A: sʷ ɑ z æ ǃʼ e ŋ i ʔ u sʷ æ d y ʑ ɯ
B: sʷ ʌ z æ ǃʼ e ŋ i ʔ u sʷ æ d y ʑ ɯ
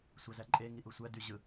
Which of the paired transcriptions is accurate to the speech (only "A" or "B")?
A